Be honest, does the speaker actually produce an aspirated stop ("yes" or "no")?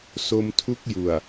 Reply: yes